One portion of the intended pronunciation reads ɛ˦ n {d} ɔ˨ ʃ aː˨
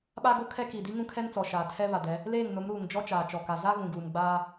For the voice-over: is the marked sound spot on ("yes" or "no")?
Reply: no